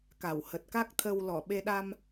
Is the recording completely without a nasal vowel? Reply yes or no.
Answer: yes